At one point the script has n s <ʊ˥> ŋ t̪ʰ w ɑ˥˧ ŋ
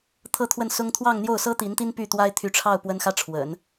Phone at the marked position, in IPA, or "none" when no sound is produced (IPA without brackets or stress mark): ʊ˥